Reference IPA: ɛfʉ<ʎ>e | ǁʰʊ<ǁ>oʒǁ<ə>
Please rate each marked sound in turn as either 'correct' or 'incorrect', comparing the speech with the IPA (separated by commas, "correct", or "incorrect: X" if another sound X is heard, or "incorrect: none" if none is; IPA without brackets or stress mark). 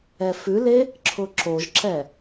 incorrect: l, correct, incorrect: ɛ